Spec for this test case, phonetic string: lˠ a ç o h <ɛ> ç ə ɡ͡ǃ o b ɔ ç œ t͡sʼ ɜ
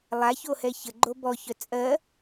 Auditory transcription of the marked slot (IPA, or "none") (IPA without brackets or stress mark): ɛ